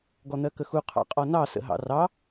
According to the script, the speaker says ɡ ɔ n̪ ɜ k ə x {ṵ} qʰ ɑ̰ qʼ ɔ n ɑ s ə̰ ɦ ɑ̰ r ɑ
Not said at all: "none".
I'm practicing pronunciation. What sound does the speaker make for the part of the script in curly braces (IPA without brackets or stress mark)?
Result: u